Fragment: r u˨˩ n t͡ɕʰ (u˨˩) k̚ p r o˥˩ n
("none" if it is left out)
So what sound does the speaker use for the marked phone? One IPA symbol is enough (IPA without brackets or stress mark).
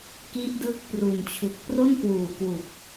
u˨˩